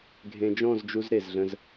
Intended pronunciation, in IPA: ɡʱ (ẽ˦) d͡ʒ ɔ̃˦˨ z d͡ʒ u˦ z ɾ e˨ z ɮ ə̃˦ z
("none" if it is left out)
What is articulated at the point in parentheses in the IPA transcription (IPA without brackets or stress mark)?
ẽ˨